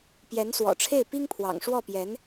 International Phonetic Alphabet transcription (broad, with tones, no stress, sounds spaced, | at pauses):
p j ɛ˧˥ n s w ɔ̰˨˩ ʈ͡ʂʰ e˥˩ ɪ̯ p i˥ ŋ pʰ w ɑ̰˨˩ ŋ ʂ w ɔ˥˩ p j ɛ˧˥ n